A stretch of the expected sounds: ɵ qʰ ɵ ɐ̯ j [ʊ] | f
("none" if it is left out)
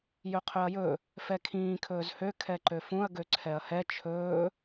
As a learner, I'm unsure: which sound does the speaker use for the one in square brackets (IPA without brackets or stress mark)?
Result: ɵ